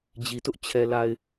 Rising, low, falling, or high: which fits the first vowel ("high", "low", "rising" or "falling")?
low